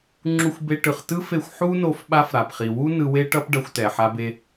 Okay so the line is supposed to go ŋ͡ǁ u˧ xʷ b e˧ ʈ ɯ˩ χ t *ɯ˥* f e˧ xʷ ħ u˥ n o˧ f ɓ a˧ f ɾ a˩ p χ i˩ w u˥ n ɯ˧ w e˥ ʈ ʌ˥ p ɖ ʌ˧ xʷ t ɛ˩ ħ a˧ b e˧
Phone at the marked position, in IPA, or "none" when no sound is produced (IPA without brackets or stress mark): ɯ˥